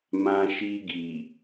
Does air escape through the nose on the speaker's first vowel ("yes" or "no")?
yes